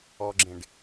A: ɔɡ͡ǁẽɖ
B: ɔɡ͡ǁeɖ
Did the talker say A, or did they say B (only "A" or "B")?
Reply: A